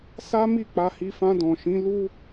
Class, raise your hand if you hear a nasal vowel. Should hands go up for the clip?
yes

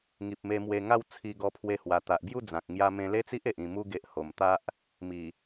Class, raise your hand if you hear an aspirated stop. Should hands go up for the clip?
yes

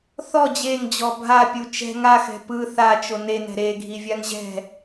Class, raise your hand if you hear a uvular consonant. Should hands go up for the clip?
no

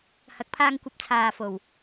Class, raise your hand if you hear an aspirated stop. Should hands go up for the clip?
yes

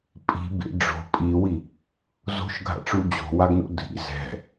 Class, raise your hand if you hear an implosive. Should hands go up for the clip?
no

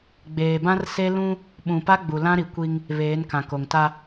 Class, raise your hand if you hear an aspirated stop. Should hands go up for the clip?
no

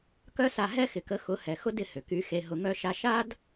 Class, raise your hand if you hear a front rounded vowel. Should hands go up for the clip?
yes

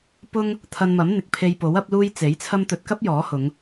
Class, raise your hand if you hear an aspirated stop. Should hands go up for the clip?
yes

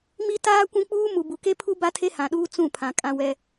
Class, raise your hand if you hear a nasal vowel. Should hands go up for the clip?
yes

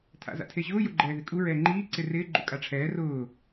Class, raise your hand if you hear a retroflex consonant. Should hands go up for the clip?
yes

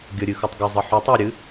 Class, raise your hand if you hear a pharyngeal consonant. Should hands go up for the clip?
yes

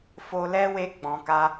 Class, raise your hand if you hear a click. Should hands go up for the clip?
no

